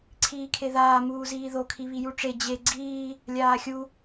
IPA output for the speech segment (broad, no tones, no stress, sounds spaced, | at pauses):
ǀʰ iː kʰ e ð aː m uː z iː ð o kʰ i β i j u ʈ͡ʂ e d͡ʑ e ɡ͡ǀ iː | lʲ aː xʲ u